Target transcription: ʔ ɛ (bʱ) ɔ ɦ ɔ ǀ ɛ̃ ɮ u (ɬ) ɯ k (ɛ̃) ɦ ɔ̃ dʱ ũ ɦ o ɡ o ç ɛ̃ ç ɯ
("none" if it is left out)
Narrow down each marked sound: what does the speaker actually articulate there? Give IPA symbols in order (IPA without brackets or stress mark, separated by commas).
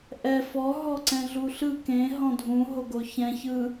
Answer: f, ɬ, ẽ